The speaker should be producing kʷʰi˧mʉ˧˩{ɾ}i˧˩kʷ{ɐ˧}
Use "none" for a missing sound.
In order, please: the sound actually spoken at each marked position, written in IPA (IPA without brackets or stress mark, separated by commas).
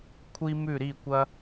ɾ, ɐ˧